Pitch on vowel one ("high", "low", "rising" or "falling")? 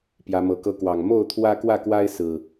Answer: rising